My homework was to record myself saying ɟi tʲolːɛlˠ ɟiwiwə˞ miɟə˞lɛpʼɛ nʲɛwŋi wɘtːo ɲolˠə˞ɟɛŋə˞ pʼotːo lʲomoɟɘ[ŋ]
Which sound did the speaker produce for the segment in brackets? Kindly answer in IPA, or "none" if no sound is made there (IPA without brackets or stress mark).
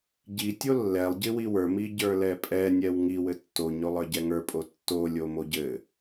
none